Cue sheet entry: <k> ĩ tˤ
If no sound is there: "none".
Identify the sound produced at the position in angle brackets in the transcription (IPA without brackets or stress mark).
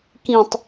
k